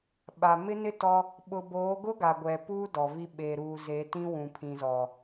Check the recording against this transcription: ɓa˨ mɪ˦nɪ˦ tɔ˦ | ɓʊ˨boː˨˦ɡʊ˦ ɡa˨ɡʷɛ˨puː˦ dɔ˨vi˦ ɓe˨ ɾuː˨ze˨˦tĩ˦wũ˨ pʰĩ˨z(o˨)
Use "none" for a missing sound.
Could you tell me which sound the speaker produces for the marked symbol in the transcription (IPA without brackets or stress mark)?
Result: ɔ˨